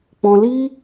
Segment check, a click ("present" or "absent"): absent